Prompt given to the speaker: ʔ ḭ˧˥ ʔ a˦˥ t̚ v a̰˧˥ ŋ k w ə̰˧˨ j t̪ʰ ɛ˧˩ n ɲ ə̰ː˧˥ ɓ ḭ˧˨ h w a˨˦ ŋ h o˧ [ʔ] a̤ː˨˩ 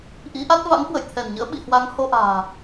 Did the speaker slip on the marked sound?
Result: no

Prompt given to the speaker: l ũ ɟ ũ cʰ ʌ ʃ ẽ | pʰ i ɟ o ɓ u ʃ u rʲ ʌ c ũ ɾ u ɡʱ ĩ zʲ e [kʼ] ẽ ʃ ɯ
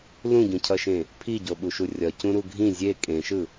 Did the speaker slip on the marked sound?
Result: no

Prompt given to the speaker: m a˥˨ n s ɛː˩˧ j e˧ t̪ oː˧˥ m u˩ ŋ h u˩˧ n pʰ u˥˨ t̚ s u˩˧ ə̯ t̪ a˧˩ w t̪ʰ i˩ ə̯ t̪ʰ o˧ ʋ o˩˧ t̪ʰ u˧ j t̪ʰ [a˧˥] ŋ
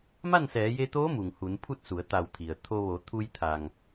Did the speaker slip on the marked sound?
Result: yes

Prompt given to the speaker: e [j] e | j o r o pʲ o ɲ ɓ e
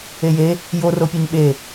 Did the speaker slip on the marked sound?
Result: no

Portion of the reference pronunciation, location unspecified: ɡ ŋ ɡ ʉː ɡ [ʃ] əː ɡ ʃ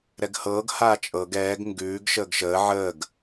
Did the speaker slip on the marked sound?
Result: no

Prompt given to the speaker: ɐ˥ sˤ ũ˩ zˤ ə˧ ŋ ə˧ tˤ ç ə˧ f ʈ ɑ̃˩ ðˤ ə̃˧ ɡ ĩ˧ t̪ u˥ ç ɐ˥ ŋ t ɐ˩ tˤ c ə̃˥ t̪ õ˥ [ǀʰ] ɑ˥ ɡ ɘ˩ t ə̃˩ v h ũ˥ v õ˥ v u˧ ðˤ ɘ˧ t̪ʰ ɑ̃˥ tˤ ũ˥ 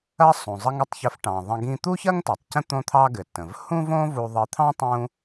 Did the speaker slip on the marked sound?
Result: yes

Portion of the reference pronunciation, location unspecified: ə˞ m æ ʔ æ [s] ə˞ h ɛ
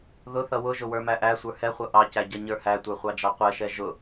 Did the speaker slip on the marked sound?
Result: yes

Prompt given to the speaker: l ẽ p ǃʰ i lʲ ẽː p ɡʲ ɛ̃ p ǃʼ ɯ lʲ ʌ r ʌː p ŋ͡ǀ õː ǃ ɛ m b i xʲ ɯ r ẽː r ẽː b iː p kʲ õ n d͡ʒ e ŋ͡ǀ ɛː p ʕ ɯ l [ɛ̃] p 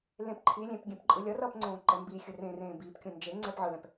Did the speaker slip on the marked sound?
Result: no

